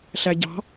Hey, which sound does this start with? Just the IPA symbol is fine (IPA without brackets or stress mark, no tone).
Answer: ɬ